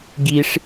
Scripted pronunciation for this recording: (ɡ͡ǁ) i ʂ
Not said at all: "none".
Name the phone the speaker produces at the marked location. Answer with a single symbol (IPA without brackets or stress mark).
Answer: ɡ